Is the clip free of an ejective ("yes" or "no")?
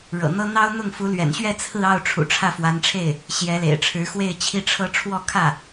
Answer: yes